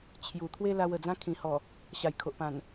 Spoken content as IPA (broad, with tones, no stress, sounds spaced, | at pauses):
t͡ɕʰ j u˨˩ t̪ʰ w e˦ l a˧ w ə˨˩ d͡z ã˦ kʰ ĩ˨˩ h ɔ˨˩ | ɕ a˨˩ j kʰ o˨ ʔ p ã˨˩ n